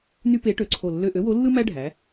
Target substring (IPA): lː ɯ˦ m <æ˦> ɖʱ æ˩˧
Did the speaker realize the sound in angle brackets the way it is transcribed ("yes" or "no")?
yes